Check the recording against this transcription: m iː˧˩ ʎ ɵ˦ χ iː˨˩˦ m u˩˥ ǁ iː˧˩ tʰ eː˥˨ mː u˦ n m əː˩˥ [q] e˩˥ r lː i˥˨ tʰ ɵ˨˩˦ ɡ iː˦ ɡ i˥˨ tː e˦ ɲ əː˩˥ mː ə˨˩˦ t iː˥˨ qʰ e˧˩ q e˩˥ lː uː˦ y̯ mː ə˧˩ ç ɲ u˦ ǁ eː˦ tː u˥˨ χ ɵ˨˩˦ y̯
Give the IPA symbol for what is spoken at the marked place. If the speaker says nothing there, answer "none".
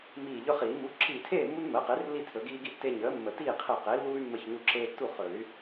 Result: q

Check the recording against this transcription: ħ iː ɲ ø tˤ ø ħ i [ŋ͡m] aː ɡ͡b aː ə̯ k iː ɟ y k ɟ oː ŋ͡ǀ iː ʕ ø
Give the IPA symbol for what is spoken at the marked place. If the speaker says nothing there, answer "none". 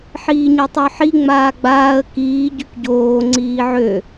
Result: ŋ͡m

